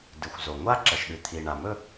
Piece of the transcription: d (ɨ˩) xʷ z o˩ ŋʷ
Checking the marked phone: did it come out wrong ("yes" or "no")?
no